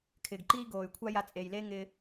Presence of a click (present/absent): present